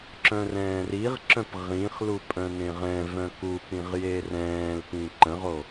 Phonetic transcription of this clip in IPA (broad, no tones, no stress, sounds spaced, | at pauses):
ǁ œ̃ r ɛ̃ː r i ʁ ǁ œ̃ p ʁ ĩ χ l u pʼ œ̃ n ẽ ʁ ɛ̃ v œ̃ k u p ĩ ʁ j e r ɛ̃ː l p ĩ ǃ ə̃ ʁ o